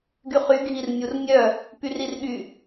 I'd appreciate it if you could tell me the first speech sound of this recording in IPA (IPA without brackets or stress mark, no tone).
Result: ɡ